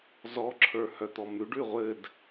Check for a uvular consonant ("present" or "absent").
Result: present